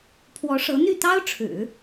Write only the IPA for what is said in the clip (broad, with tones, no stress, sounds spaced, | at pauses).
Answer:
pʰ w ɔ˧˥ ʂ ɤ˧˥ n̪ y˥˩ t̪ ɑ˥ ʊ̯ ʈ͡ʂʰ ɻ̩˨˩˦